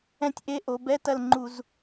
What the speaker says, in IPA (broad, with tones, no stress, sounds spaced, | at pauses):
ɛ̃˦˥ tʲ ʔ e˧˥˧ ʔ o˩˧ b ɛ˧˥˧ t ɐ˦˨ l ŋ͡ǃ u˧˩˧ z